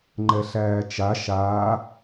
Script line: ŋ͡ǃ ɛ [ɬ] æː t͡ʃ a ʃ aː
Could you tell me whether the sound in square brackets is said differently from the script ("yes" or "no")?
no